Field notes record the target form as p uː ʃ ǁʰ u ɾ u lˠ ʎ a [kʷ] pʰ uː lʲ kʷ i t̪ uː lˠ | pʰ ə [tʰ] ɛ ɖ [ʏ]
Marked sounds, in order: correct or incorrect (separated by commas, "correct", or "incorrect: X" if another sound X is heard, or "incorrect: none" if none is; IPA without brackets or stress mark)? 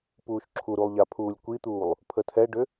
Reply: incorrect: none, correct, correct